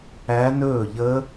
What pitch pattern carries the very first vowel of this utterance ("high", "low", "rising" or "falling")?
rising